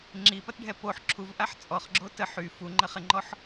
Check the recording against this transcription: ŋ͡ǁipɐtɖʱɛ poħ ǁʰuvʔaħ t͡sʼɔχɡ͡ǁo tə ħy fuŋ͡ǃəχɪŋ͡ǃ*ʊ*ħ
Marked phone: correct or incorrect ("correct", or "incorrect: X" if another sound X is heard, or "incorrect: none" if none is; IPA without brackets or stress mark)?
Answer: incorrect: ɔ